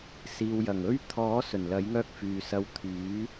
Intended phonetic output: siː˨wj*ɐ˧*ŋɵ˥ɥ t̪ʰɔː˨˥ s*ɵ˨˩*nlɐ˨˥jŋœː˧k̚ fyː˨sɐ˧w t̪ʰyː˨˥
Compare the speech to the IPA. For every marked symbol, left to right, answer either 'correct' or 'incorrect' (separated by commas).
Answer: incorrect, correct